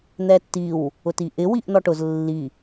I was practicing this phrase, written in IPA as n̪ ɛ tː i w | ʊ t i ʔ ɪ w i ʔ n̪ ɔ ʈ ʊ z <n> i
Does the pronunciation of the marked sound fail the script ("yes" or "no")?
yes